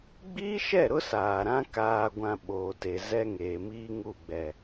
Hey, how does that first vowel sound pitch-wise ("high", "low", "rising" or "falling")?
high